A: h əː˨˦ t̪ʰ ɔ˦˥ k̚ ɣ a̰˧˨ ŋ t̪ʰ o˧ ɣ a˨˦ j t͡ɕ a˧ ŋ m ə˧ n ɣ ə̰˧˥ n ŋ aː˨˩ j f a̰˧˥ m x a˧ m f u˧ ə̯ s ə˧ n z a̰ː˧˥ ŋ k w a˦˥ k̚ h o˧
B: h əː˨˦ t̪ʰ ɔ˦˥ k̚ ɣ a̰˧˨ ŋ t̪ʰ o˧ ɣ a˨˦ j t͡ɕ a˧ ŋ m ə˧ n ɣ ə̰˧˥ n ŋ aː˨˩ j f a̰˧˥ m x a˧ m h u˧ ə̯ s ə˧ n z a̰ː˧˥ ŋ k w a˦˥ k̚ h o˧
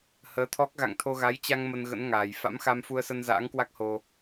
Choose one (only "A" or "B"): A